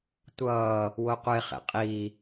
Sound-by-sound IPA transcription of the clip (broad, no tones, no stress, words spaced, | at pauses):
tʷʌː | woqʷeχḛ qʼi